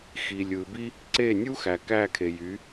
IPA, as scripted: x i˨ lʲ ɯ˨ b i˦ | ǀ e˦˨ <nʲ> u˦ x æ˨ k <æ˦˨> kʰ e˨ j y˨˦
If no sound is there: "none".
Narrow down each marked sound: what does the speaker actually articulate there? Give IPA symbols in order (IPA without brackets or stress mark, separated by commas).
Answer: nʲ, æ˦˨